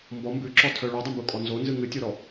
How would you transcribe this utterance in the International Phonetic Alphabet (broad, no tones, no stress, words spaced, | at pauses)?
mbɔ mbʉǁɔtʰœ ɭʉdˤumbukʼɔ nzonzɨ ŋɨtʲoɾɔ